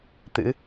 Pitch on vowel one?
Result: rising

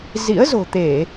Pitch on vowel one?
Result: rising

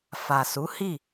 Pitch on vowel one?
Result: low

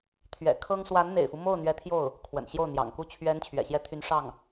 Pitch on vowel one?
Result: low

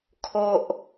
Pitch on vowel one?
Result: high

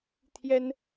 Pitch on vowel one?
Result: high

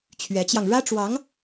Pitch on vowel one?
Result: rising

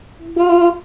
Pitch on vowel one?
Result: high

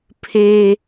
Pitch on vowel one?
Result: high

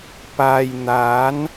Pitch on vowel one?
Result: low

